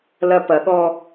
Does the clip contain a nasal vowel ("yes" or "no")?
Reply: no